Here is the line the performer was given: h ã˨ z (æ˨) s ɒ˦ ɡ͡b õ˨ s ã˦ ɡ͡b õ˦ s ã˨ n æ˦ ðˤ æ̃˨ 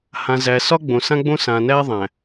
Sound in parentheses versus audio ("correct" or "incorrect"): correct